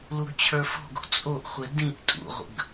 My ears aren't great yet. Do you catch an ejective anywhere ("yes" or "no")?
yes